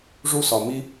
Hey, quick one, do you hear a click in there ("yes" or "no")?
no